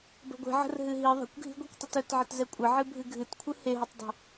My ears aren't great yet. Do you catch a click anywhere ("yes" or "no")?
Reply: no